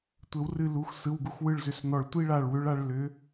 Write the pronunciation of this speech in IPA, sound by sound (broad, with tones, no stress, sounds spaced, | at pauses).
tʷ ɘ˨˩˦ w r ɨ˧˩ l u˩˧˩ x s ɯ˩˧˩ w ɡ u˨˦ x w ɯ˧˩ ɭ z ʏ˨˩˦ s n ɔ˧˩ ɭ tʷ i˦ ɭ a˧˩ ɭ w ʏ˨˦ ɭ a˨˦ ɭ l ʏ˨˦